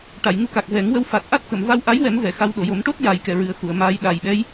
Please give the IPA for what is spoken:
ʈ a˨˩˨ j ŋ u˧ k a˨˩ k̚ v ɛ˨˩˦ ŋ w ə˧˥ w f a˨˩ t̚ ʔ a˦˥ t̚ k ə˨˩˨ m v a˧ w ʔ a˧˥ j w ɛ˨˩˦ m v ɛ˨˩˨ x a˧ w ɗ o˨˩˨ j o˨˩˦ m ʈ o˦˥ t̚ j a˧ j k ɛ˧ ɹ ɨ˨˩ ə̯ x u˨˩˨ ə̯ m aː˧ j ɗ aː˨˩ j ɓ ɛ˧˥ j

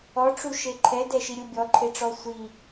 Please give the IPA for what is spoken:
ɔ ʈ͡ʂ u ʃ e ǃʰ ɛ d ɛ ʃ i ɾʲ u bʲ ɔ ǃʰ e ʈ͡ʂ ɔ sʷ i

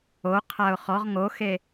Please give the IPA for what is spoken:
o qʰ a ʊ̯ χ ɔ ʁ ŋ o x e

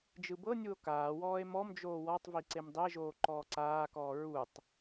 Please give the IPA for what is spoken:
d͡ʒ ɯ b ɤ nʲ u o̯ k aː w ɔː e̯ m ɔ m d͡ʒ oː w ɔ tˤ v i ǀ e m dˤ e ʒ oː ǃ ɔː ǀ aː k ɔː ɹ u tˤ

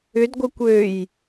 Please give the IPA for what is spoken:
ʏ d ɡʷ œ kʷ ø j

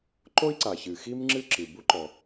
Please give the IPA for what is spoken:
ǃ o˥ i̯ ǀ a˩ ç ɨ˩ x i˥ m ŋ͡ǁ ɨ˥ ǁ ɨ˩ b u˥ ǃ ɔ˩

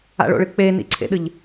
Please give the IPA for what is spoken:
a̰ ɭ o̰ ɭ ɨ k͡p e n ḭ ǀʰ ḛ ɗ ɨ ʎ

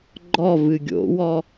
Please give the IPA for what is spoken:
ɡ͡ǃ ɔ v ɨ ɡʲ o̰ w ɔ

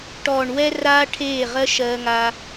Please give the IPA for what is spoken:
ʈ ɔː˨ ɳ w ɛ˧ r aː˦ ʈʰ eː˦˨ ʁ ɜ˦ ʃ ɜː˧ ŋ aː˧

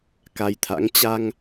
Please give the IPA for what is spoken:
k a˧ j t̪ʰ a̰˧˥ ŋ t͡ɕ a˧ ŋ

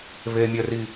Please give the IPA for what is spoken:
β e mʲ œ r i

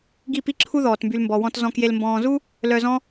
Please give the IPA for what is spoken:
ɡ i˦˨ p i˦ ǁʰ u˦ ð ɔː˨ t m b y˧ l m b ɔ˨ w ɔ̃˧ t z ɔ̃˨ k j e˨ l m b ɔ̃ː˨ z u˦ | l œ˧ z ɔ̃˦

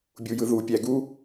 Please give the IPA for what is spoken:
bʲ u˨ j ɯ˨ ð u˨ pʲ æ˨ ɡ u˦

